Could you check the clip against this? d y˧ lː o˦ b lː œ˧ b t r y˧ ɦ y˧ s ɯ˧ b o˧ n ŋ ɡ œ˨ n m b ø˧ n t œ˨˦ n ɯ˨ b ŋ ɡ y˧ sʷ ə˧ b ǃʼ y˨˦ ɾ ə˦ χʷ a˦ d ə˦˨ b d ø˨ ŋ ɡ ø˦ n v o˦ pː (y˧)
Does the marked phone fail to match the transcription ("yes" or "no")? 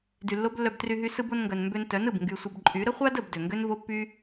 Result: yes